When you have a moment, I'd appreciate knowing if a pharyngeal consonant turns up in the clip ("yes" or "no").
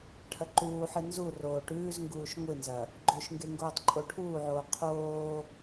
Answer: yes